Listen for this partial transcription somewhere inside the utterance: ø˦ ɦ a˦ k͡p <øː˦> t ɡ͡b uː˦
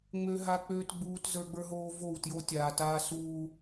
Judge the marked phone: correct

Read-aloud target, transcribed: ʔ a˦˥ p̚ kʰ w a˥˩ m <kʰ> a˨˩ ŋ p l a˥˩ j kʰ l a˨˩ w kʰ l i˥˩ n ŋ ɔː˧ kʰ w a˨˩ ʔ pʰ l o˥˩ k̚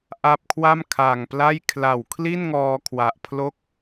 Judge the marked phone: correct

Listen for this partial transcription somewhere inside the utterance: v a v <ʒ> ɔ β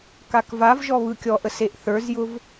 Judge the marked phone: correct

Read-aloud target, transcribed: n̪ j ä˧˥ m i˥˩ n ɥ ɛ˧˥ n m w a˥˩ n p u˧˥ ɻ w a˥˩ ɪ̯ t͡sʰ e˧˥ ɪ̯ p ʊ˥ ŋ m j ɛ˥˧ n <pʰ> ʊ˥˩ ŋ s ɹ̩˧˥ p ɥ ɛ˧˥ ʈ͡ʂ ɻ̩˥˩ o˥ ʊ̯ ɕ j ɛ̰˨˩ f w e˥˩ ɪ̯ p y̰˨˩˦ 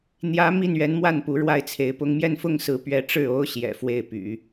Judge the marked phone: incorrect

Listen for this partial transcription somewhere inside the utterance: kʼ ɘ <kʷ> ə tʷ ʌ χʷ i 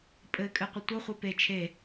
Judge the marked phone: incorrect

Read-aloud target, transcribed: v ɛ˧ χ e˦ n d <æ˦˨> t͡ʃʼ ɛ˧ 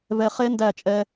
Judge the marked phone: correct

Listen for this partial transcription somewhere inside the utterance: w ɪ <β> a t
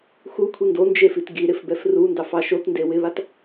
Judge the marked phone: correct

